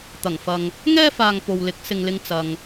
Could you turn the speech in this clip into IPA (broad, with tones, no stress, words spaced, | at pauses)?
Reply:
t̪ɐ˨˩ŋfɐ˨ŋ | ŋɛː˥faː˨ŋ po˨w lɪ˨˥k̚ sɪ˨ŋlɪ˧ŋ t͡sɐ˨ŋ